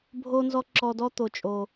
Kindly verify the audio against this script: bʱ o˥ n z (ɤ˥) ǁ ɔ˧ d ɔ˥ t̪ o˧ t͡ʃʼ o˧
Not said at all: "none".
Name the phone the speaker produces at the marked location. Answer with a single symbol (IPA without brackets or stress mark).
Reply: ɔ˥